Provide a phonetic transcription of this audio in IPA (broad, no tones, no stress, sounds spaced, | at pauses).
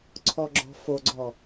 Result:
ǀʰ ɔ ɡ͡ǁ ɔ̤ f o ɡ͡ǀ ɔ